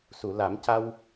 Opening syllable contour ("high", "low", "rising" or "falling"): low